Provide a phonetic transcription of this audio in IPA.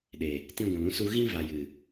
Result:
ɗ e˨ | t ĩ˧ ɡʷ ũ˨ l ũ˧ s u˧ ɣ ĩ˧ v a˨ j ɨ˨

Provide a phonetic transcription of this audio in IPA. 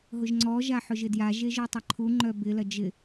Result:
ɦ ʊ ʒ ŋ͡ǀ ɔ ʒ a ħ ʊ ʒ ɪ d j a ʒ e ʒ œ tˤ ɐ ǃʰ u ŋ͡ǃ œ b ɪ l ɐ d͡ʒ ɪ

